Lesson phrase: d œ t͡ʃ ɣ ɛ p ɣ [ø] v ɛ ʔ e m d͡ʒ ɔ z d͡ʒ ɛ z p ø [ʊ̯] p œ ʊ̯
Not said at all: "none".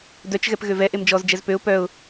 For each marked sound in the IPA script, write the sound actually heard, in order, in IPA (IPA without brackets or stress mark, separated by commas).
ø, ʊ̯